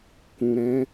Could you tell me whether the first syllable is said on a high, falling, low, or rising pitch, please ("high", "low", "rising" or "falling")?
low